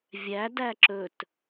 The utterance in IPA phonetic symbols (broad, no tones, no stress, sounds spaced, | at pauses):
vʲ æ d æ ǁ ɵ t